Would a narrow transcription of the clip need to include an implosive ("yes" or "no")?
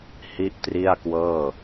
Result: no